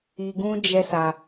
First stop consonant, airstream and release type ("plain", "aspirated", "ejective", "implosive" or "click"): plain